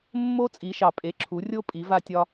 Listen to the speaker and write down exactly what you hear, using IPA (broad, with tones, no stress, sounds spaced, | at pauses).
mː o˦˥ t͡sʼ i˩˧ ʃ ɑ˩ pʼ e˩˧˩ ǁʰ u˩˧ rʲ o˦˥ pʼ i˩˧ v a˧ tʲ ɒ˧